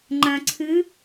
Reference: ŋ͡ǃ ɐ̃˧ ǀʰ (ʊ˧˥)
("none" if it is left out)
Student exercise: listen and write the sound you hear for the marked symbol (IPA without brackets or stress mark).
ʉ˧˥